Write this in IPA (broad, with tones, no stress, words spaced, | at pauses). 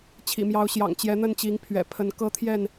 t͡ɕʰḭ˨˩mjɑ˨˦ʊ̯ɕjɑ̰˨˩ŋ t͡ɕjɛ˨˦n̪ə˥˨nt͡ɕi˨˦ŋ pʰɥɛ̰˨˩ pʰə˨˦n kɤ˦t̪ʰjɛ˥˨n